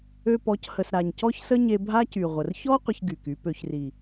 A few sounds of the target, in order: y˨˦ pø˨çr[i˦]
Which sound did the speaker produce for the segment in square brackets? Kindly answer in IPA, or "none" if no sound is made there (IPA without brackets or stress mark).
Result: i˨